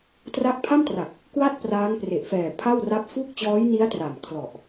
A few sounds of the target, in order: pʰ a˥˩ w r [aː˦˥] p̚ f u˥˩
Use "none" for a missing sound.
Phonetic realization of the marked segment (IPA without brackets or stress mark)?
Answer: a˦˥